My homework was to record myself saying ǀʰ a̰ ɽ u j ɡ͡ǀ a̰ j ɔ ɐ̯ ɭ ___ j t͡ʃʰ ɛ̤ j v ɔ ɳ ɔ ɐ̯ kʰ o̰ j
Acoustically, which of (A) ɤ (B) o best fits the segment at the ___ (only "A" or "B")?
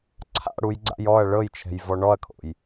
A